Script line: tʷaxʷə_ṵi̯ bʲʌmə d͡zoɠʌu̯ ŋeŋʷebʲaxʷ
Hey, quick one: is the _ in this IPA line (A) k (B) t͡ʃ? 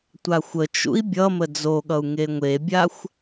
B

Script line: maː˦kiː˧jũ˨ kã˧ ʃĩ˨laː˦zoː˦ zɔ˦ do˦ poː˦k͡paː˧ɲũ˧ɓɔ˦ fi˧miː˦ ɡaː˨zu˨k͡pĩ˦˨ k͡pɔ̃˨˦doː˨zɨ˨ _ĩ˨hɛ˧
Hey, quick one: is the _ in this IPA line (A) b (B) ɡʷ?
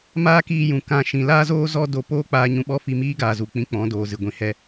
B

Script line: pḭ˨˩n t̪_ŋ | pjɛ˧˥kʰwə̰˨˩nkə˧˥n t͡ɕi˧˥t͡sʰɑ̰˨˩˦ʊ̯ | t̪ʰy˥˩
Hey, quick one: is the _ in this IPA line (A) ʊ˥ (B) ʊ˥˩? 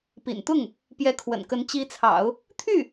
B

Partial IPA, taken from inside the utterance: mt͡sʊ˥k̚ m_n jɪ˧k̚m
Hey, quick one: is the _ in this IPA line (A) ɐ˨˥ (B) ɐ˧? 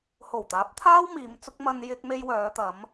B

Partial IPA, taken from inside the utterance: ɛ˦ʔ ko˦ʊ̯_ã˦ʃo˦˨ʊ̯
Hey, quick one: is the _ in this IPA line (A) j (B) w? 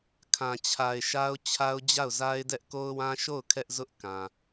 B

